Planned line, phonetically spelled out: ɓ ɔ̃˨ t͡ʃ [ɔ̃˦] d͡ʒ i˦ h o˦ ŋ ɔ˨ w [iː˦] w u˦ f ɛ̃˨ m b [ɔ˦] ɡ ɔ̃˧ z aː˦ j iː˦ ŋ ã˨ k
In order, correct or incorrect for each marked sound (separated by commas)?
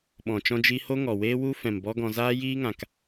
correct, incorrect, correct